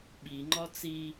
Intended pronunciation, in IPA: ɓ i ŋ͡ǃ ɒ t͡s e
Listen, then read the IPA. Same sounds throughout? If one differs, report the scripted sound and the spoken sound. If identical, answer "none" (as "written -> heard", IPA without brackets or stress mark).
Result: e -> i